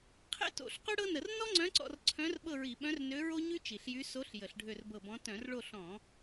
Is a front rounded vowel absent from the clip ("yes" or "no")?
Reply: no